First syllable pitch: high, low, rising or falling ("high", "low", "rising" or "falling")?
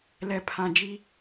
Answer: low